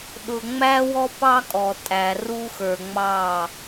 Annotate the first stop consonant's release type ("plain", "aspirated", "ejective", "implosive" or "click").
implosive